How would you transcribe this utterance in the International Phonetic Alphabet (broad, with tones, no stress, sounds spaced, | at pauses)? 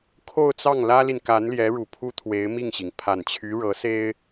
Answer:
kʰ o˥˧ ʊ̯ t͡s ɑ˥˩ ŋ l ä˥ l i˨ n k a˧˥ n l j ɛ˧˥ ɻ u˨˩ pʰ u˥ t̪ʰ w e˧˥ ɪ̯ m i˥˩ ŋ ɕ i˩ ŋ pʰ a˨˩ n t͡ɕʰ y˧˥ ɻ ɤ˧˥ s e˥ ɪ̯